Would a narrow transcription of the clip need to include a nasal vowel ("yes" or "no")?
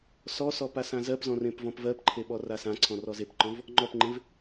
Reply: yes